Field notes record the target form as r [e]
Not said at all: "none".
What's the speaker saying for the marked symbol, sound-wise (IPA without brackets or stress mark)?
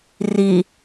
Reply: i